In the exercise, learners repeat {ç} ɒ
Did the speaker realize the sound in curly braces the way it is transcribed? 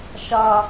no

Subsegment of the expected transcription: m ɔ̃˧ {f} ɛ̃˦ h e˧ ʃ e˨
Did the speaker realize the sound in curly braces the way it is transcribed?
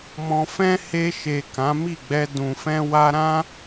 yes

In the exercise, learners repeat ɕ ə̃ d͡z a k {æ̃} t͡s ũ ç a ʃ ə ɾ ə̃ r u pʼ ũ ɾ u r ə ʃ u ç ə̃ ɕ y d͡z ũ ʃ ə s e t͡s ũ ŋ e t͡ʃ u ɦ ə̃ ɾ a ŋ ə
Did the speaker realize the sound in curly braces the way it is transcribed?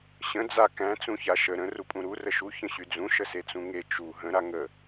yes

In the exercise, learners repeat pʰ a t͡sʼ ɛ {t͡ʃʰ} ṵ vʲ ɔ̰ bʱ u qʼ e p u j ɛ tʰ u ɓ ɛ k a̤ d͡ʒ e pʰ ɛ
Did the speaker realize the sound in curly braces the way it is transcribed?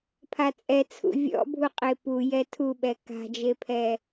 no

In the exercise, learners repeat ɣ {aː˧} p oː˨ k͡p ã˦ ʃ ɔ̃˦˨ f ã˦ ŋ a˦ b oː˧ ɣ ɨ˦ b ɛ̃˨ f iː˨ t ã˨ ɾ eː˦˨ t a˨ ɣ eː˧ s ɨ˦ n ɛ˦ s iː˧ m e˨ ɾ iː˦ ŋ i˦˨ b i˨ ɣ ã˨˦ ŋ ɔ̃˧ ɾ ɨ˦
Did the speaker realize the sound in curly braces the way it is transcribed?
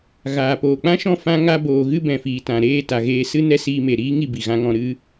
no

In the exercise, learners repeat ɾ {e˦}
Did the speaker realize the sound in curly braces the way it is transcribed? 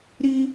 no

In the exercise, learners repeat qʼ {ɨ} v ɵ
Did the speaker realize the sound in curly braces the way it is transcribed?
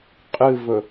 yes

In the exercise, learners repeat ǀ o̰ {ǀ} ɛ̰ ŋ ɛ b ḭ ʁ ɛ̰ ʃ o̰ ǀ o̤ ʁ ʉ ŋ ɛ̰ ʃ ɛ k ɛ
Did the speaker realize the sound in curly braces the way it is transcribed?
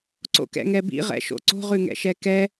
no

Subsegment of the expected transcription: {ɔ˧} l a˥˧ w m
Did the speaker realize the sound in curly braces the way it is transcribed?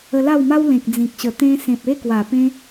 no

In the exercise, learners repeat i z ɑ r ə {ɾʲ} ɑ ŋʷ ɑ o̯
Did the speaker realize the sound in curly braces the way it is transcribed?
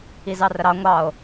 no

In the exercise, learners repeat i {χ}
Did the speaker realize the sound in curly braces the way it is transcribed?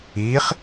yes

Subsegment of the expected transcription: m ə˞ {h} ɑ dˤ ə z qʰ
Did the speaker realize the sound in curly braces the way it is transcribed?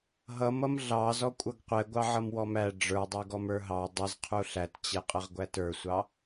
no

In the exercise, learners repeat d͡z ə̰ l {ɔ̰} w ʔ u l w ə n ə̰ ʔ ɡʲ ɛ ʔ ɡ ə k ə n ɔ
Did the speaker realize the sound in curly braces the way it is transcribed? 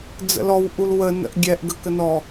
no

